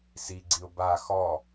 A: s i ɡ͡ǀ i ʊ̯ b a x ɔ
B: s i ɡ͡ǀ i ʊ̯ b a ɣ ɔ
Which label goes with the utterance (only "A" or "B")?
A